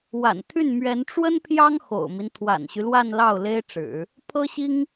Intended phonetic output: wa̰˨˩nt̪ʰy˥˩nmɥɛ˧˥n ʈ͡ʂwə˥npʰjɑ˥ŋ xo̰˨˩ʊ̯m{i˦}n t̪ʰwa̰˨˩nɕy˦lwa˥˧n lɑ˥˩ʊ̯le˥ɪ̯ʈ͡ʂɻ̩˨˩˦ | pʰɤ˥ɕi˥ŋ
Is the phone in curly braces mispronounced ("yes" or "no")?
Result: no